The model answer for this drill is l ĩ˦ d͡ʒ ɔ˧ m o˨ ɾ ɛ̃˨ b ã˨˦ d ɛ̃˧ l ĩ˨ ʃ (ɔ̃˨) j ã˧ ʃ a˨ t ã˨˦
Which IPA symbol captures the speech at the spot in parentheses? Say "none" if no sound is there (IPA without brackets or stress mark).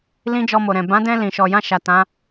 ɔ˨